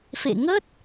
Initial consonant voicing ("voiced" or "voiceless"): voiceless